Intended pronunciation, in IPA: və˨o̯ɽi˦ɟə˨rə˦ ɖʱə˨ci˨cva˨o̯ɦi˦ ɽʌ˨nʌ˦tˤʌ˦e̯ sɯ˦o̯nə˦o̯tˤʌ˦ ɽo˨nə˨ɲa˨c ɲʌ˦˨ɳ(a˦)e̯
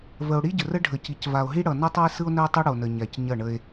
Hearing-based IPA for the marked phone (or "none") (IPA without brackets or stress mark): ə˦